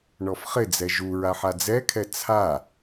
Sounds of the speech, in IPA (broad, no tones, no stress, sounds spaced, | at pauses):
ɳ ɔ f χ ɪ d͡z ɛ ʒ u ɹ a ħ a d͡z ɛ kʰ ɛ t͡sʰ a